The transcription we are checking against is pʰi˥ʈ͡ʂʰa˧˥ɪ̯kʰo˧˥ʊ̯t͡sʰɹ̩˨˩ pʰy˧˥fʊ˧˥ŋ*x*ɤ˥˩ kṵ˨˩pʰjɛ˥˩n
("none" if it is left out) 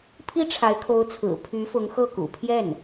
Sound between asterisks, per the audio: x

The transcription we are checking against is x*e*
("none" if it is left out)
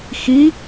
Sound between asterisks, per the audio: i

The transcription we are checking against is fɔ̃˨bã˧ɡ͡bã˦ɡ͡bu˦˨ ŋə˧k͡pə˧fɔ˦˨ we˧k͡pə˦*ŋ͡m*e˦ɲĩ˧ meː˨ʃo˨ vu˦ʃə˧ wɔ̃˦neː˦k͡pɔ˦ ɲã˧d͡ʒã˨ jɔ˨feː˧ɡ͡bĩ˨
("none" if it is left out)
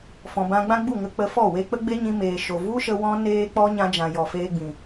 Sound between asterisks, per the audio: ɡ͡b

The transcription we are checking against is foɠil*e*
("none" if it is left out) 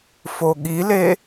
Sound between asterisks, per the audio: e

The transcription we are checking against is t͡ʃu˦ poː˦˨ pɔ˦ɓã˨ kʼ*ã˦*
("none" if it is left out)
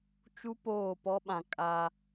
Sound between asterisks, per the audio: a˦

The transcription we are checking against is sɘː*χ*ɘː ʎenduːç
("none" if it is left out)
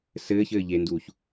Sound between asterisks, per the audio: ç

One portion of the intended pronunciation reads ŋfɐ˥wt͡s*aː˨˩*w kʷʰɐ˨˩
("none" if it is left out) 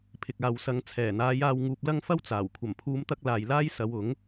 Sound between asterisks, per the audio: aː˨˩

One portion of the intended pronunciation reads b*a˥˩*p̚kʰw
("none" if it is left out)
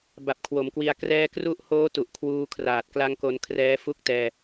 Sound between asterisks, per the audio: a˨˩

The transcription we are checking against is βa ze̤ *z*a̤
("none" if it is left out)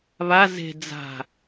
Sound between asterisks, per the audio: d͡z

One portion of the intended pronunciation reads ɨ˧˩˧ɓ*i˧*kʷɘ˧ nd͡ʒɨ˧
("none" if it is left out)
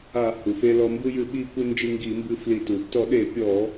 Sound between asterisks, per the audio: i˧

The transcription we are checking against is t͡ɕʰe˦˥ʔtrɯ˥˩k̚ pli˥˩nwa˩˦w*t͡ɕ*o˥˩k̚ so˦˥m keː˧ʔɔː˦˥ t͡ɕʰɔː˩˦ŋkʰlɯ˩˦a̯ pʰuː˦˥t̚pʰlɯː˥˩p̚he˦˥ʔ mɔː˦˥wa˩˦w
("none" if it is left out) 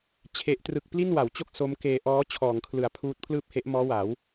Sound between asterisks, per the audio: t͡ɕ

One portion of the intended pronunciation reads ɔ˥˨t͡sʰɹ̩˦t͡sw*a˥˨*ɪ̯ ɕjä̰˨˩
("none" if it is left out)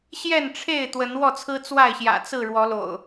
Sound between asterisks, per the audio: a˥˨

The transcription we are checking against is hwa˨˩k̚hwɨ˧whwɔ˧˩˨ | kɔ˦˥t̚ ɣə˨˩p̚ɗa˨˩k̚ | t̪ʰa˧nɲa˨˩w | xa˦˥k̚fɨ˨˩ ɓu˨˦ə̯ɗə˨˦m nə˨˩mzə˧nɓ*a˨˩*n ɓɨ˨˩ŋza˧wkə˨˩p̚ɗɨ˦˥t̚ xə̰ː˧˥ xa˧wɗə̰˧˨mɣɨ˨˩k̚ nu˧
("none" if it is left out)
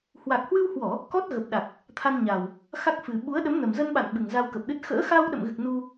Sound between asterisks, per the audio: a̰˧˨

